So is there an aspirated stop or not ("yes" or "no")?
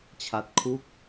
yes